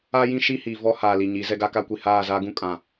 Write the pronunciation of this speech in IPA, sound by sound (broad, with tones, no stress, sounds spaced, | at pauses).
a˦ j ĩ˦ ʃ i˦ h iː˨ v ɔ˦ h aː˨ l i˨ ɲ i˨˦ z ɛ˦ ɡ a˦ k a˦ kʷ i˨ h aː˦˨ z aː˦ ɡ ũ˦ kʼ ã˨